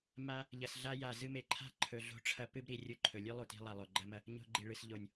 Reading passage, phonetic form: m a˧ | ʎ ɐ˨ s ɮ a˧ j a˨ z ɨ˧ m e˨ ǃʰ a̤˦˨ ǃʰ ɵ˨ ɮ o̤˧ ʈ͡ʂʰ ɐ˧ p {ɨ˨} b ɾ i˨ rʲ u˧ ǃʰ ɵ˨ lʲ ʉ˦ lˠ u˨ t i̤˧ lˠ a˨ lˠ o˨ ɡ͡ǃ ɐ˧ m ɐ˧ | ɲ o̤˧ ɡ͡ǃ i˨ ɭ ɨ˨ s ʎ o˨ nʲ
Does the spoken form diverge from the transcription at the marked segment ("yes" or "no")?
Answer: yes